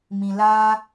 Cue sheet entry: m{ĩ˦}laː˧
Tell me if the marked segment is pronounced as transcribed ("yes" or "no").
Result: no